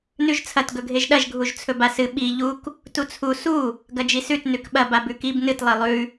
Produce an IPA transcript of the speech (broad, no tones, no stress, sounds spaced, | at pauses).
n ʉ ʒ t͡sʰ ɐ t ɡ ɵ ɡʱ e ʒ ɗ ɐ ʒ ɡʱ u ʒ t͡sʰ ɵ b a s ɨ ɓ i ʎ u k | t u t͡sʰ u s u | ɡ ɐ d͡ʒ i s ʉ t n ʉ k ɓ ɐ b a b ʉ k i b n ɨ t lˠ i lˠ ʉ